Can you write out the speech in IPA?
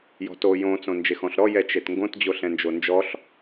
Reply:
j ɔ̤ t o j õ t͡s õ n d͡ʒ e x ɔ̃ ɬ ɾ ɔ j ɛ t͡ʃ e t ŋ ɡ õ t d͡ʑ o ɬ ɛ̃ n d͡ʒ o n d͡ʒ ɔ ɬ

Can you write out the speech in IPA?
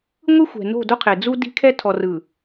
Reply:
ŋʷ ɯ˦ xʷ ɛ̤˨ n o̤˦˨ d o˦ qʰ e˨ d͡z u˦ d i̤˦ kʰ ɛ˦ tʰ ɔ˨ r ɯ˨

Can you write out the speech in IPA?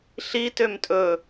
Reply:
ɬ i t ø m tʼ ɵ

